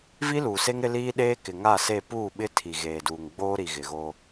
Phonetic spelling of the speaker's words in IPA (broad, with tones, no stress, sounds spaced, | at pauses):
v i˦ l uː˨ s e˦ ŋ ɾ ɪ˦ l iː˦ ɗ eː˦ k ɪ˨ ŋ a˦˨ s e˦˨ p uː˦˨ ɓ ɪ˦ tʰ i˨ ɣ eː˨ d uː˨ ŋ ɡ͡b oː˦ ɾ i˨ ɣ ɪ˨ ɣ o˦